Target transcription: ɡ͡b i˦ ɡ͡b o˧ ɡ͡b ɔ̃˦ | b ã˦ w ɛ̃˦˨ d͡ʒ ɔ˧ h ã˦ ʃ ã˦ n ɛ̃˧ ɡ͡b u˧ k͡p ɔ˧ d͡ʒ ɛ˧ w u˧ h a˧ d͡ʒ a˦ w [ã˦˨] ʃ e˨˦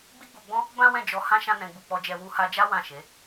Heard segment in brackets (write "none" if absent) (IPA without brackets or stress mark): ã˦˨